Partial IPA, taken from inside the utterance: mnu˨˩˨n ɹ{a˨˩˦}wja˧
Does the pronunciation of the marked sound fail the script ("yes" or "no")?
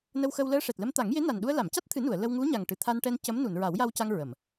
no